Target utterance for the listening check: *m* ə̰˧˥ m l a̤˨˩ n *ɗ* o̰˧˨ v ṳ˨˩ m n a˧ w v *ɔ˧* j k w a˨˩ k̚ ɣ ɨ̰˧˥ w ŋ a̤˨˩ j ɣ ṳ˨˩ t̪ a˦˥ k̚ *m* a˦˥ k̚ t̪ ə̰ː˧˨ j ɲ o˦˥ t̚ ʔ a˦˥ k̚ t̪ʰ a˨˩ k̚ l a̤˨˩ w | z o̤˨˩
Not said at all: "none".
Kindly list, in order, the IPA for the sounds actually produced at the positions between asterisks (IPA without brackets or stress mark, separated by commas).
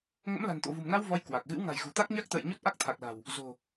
ŋ, t̪, ɔ˧, ɲ